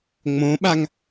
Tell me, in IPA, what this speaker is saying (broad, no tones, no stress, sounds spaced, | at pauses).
ŋ͡m õ ɓ a ŋ